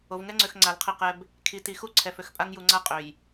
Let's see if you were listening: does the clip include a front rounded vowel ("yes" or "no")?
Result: yes